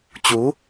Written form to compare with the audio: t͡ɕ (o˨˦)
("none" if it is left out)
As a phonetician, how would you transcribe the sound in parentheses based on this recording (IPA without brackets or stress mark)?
u˨˦